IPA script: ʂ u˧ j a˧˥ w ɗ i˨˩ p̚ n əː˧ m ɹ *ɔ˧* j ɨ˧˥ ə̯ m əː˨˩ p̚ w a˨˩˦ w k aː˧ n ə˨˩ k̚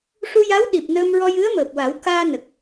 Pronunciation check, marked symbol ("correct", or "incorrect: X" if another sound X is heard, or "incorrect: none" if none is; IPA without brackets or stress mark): correct